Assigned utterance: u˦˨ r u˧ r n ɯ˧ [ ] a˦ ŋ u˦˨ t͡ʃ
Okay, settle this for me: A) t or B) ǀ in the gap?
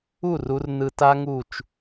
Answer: A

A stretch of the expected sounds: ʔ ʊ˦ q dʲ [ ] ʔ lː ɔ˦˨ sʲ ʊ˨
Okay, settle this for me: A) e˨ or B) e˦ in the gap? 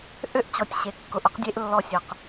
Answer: B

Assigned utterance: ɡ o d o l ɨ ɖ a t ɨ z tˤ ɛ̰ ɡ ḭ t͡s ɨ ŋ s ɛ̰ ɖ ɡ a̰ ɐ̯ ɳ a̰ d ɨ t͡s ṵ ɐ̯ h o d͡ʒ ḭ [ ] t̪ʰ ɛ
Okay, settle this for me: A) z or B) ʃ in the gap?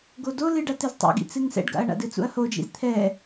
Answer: A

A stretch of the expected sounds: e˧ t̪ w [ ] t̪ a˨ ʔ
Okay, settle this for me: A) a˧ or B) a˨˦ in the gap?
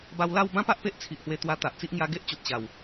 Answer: A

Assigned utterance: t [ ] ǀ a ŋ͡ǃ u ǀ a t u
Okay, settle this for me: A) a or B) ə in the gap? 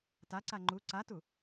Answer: A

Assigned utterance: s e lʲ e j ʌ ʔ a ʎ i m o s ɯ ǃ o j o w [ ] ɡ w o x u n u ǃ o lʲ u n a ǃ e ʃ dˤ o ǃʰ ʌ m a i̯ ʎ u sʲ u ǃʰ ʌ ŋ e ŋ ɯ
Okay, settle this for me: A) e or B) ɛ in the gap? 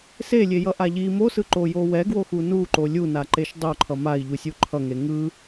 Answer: B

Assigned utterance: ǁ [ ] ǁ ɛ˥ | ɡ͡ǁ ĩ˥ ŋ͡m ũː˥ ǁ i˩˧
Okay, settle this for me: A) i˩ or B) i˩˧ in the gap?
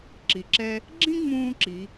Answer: A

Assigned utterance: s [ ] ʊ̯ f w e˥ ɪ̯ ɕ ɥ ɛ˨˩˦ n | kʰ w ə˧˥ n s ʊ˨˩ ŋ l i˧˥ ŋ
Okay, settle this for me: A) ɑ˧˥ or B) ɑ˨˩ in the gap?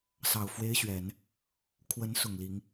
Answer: B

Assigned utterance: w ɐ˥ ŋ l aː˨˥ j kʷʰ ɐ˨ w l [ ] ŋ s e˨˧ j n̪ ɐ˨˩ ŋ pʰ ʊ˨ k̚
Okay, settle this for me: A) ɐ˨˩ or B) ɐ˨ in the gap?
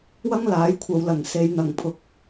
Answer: A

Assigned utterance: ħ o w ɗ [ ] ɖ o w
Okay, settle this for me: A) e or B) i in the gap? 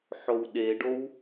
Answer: A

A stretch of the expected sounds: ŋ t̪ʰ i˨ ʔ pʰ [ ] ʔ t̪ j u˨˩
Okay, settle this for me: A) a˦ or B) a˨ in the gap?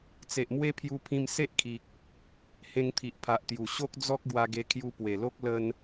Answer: B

